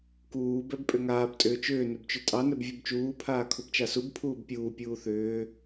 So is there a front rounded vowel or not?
yes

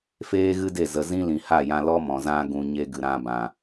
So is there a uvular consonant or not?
no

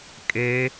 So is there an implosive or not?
no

